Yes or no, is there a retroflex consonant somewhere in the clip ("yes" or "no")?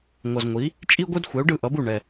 yes